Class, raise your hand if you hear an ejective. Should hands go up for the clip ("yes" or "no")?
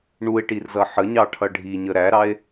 no